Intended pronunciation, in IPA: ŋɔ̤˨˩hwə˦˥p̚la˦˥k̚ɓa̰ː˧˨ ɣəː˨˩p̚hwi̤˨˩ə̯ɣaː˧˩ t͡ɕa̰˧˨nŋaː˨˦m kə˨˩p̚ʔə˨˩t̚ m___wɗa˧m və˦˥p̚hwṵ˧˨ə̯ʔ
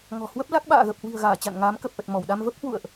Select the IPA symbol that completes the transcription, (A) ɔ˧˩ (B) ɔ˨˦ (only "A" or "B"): A